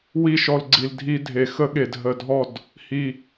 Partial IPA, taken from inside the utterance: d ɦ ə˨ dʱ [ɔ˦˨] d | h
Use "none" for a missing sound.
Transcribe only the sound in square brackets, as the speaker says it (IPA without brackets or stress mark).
ɔ˦˨